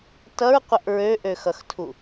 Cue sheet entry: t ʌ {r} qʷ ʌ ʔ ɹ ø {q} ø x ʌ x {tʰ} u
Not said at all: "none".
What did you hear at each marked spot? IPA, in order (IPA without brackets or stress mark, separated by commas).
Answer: ɹ, ʔ, tʰ